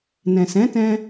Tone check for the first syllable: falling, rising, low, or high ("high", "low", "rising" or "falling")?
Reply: low